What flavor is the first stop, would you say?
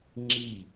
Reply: click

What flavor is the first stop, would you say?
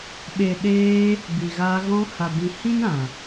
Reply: implosive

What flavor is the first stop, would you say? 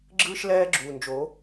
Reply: click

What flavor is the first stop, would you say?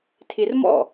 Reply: aspirated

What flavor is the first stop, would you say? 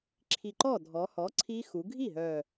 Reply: click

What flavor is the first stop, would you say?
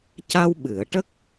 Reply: plain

